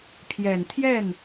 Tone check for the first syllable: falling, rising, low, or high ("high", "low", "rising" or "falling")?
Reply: low